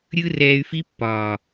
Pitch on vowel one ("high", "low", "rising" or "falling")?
high